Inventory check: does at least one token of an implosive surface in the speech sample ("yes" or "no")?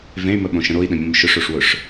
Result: yes